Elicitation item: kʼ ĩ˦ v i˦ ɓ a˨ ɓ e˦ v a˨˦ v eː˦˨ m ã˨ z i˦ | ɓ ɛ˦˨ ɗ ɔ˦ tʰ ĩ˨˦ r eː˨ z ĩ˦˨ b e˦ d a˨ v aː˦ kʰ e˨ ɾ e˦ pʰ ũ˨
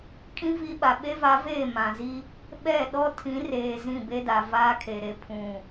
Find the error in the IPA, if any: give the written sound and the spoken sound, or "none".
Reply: none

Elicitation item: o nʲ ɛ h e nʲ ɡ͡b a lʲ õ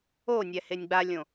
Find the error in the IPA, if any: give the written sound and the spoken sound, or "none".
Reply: none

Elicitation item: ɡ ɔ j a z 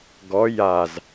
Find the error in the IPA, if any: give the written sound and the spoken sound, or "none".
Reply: none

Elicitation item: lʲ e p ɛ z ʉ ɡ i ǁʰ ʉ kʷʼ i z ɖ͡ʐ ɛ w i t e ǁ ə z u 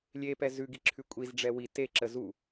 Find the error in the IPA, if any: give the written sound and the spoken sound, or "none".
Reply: none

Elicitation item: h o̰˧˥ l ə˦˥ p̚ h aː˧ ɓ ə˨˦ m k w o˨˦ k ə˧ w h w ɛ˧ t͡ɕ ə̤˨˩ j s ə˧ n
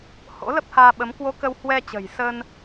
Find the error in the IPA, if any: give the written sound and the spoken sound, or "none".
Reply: none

